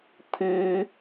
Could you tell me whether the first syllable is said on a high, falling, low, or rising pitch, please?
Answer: high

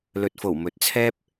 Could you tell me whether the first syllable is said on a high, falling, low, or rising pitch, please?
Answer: low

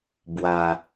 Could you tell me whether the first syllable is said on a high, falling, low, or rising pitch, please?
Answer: low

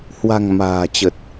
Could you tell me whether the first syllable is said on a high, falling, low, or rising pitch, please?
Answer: low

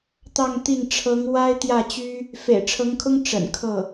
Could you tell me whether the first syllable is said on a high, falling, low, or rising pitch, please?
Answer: falling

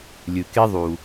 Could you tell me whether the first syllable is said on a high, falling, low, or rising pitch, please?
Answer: low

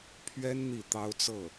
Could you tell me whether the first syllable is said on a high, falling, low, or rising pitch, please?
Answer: high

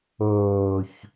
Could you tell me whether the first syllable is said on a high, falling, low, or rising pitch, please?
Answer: low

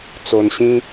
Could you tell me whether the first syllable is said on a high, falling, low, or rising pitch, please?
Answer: low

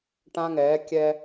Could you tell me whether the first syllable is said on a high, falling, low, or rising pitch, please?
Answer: high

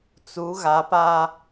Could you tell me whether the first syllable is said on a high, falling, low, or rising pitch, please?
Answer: rising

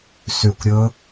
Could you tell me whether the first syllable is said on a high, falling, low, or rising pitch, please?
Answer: falling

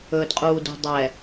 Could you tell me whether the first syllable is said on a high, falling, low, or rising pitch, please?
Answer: low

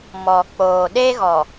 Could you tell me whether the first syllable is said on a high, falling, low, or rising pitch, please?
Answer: low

